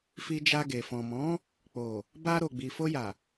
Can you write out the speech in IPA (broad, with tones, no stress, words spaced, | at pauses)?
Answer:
fi˧d͡ʒa˧ɡe˨ fɔ̃˨mɔ̃˨˦ | k͡po˨ | ba˧ ɾo˨ɡ͡bi˨ fo˧ja˨